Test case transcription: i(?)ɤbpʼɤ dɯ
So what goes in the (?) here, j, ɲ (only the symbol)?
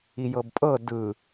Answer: j